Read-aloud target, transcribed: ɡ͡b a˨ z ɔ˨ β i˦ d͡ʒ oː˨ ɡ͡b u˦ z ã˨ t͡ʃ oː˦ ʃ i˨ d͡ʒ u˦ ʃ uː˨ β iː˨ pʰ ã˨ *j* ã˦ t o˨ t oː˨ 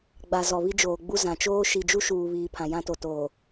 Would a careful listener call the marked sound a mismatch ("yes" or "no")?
no